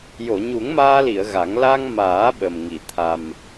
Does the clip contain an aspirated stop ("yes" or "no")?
yes